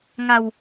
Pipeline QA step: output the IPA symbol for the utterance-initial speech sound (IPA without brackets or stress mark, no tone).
ŋ